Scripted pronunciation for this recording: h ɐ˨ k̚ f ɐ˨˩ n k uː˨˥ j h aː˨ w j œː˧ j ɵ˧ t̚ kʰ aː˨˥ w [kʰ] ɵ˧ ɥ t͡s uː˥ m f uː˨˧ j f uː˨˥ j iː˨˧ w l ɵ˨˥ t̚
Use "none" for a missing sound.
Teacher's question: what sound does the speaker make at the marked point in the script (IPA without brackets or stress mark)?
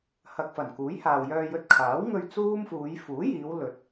ŋ